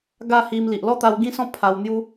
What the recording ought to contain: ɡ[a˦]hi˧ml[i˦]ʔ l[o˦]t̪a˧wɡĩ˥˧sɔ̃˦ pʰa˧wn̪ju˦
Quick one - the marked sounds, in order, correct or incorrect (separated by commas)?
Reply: incorrect, incorrect, incorrect